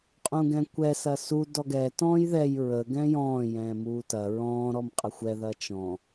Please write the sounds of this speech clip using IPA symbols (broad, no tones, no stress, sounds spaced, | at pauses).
qʼ ũ ɡ ɛ̃ kʷ ɛ s ɐ s u d ɔ ɡ ɛ t ɔ̃ː j ð ɛ j ɹ ə ɡ ɛ̃ j ɔ̃ː j ɛ̃ː m uː t ɐ ɹ ɔ̃ː ɾ ɔ m qʼ ə xʷ ɛ ð ɐ t͡ʃ ɔ̃